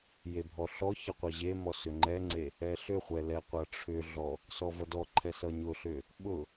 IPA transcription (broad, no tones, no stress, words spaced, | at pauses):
jebʱɔɬɔçʌ qʷʌʑemɔ sʏŋ͡ǃɛŋ͡ǀe | ɛɬʏχʷɛ lɛqʷʌʈ͡ʂʰʏɮɔ | sɔvʌdɔǃʰɛ sʌɲʊɬʏ | ɓʊ